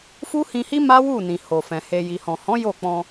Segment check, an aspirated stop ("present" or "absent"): absent